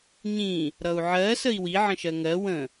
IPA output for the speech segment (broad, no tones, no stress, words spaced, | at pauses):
ɲĩ | ɾʌu̯ʕɜ səi̯wi ʕə̃ʃɜŋɜ wə̃